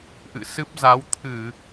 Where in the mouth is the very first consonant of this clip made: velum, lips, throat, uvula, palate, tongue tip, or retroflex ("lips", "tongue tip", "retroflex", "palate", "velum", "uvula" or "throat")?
throat